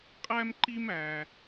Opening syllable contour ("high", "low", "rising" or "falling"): high